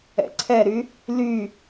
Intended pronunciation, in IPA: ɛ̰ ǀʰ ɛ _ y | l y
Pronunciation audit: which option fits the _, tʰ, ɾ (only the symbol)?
ɾ